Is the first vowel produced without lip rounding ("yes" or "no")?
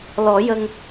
no